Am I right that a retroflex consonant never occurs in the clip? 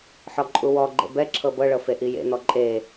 no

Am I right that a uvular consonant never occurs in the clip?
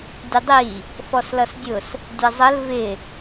yes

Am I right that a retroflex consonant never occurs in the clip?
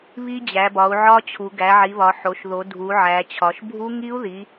yes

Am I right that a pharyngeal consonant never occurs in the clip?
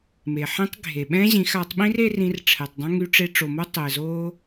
no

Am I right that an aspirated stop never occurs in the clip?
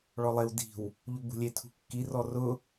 no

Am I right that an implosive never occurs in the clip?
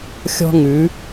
yes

